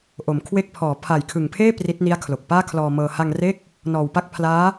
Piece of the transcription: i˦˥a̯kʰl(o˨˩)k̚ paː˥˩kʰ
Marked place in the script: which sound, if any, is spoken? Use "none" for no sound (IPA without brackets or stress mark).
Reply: o˨˩